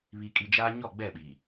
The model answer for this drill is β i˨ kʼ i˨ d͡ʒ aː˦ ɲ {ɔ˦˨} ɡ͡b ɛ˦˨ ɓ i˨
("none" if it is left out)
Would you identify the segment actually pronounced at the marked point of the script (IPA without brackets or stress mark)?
ɔ˦˨